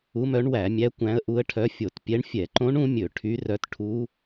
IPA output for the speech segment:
u˧˥mœ˧˥ɳwæ˧˩˧mʲæ˧˥ kʷæ̃˧˥ə̯ʔu˧˥ə̯ʈʰœ˧˥ fʲo˧˩˧tpʲɛ˧˥ɳ fʲɛ˧˩˧ǃõ˧˥ɳ ũ˧˥mʲɵ˧˩˧ ʈʰy˧˥rœ˧˥t ʈʰu˧˥

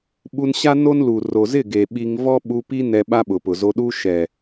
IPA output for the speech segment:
ɓu˧nɕa˦ no˦nlu˨ ro˨zɪ˦˨ ɡe˨ɓi˧ŋ vɔ˦ɓu˧pi˦ nɛ˧ɓa˦ɓʊ˨pʊ˨ zo˧ɗu˦ ʃɛ˨

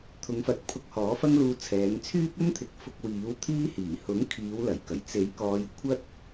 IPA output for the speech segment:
t̪ʰʊ˨˧ŋfɐ˨˥t̚ pʰʊ˧k̚hɔː˨˥fɐ˥ŋluː˧ t͡sʰɛː˨˧ŋt͡sʰyː˥p̚ ɵ˥nt̪ʰɪ˨˥k̚ fʊ˧k̚wiː˨˥wt̪ʰiː˥hiː˨˩ hʊ˨˥ŋ kʰiː˨˧wlɐ˨˩jkɐ˨˩j t͡se˨˥j kɔː˨˧j kʷʰɐ˥t̚

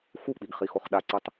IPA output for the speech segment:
xuk͡piɡχixoχ ɗaǀɯtˤ

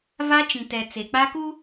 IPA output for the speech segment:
va˦t͡ʃĩ˨tɛ˨ t͡se˨k͡pa˦ku˦

